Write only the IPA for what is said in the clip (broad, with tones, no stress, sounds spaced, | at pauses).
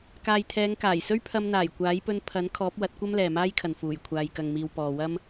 k aː˨ j t̪ʰ ɛː˨˧ ŋ k aː˨˩ j s ɵ˥ ɥ pʰ ɐ˧ m n̪ aː˨˩ j kʷ aː˨˥ j p ɵ˧ n pʰ ɐ˨˥ n kʰ ɔː˨˥ p̚ w ɐ˨˥ t̚ kʷ ɐ˥ m l ɛː˨ m aː˥ j kʰ ɐ˨ n f uː˨˩ j kʷʰ aː˨ j k ɐ˨ ŋ m iː˨ w p ɔː˨ w ɐ˥ m